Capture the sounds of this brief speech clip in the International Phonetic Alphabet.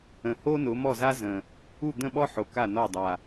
ə̃˨˩ h o˥ n ʊ˨˦ m ɔ˥˨ z a˥ z ə̃˨˩ | u˥˨ d̪ ə̃˥˨ ɓ ɔ˥ ħ o˨˦ k a˥˨ n ɔ˥˨ dˤ a˨˩

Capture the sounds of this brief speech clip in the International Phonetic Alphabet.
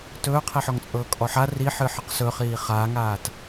t ɵː qʰ i ħ ɔ ŋ t͡sʼ ɤː kʼ ɔ ħ a r i ħ ɨ ħ ɨ q s ɵ χ iː χ aː ŋ aː t

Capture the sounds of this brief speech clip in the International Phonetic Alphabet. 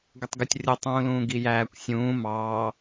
ɡ ə tˤ ɡ ə tʲ rʲ ə tˤ ũː l ũː ɡ i j æː kʷ sʲ ũː m ɑː

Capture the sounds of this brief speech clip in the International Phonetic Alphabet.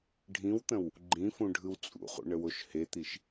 ɖʱ ĩ w t̪ ə̃ w | ɡ͡ǃ ĩ f ũ ɖʱ ɯ w t͡sʼ ṵ χ ṵ ɳ ə w o ʃ h e t̪ i ʃ

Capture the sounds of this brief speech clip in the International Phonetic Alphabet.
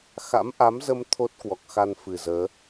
x a̰˧˥ m ʔ a˨˦ m z ə˧ m t̪ʰ o˦˥ t̚ k w ɔ˨˩ k̚ x a˧ n f ɨ˨˩ z əː˨˦

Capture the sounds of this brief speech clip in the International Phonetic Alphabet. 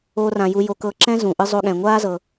o˥ r ã˧ j u˧ j o˧ k ɤ˧ ǁ ɛ̃˥ z ũ˩ ʔ ɯ˧ zˤ o˧ ɠ ɛ̃˩ ŋʷ aː˥ z ɤ˩

